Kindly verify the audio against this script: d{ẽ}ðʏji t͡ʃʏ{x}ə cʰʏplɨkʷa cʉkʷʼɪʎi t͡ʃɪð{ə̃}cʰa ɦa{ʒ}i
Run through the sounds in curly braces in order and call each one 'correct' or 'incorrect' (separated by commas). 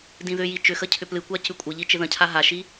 incorrect, correct, correct, incorrect